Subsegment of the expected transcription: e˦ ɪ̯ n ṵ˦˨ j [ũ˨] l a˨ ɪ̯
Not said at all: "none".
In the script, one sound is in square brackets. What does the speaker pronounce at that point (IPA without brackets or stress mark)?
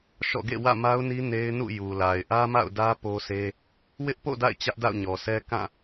u˨